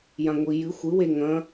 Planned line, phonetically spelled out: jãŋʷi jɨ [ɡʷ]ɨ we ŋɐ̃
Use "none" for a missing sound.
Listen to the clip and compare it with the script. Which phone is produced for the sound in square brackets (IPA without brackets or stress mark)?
xʷ